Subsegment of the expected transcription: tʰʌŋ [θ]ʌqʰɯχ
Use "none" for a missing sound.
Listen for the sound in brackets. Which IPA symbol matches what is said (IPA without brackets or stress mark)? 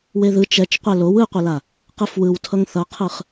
θ